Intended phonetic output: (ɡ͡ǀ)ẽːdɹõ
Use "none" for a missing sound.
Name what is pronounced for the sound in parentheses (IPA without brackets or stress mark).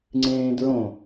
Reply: ŋ͡ǀ